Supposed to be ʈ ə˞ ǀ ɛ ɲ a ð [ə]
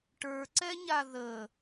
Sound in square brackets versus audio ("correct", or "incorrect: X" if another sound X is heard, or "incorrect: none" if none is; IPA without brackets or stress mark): correct